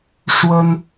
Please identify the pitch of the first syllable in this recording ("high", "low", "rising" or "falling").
high